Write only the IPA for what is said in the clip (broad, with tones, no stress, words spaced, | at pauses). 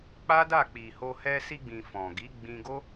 k͡pa˦da˦˨k͡pi˨ho˧ hɛ˧si˧ɡ͡bĩ˨ fɔ̃˨ɡi˨˦ɡ͡bĩ˧ɡo˦